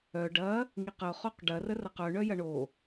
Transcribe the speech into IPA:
œ ɖ ɐ | ŋ i q ə ʊ̯ χ o q ɖ ɐ r ə r ɐ q œ ɳ œ j ɐ ɳ o

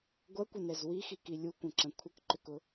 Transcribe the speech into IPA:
ɡʷ ɐ kʷ ə n ɛ z w i x i k i lʲ u kʷ ə̃ ǁ ɐ̃ kʷʰ ə k ǃ ʏ k ʊ

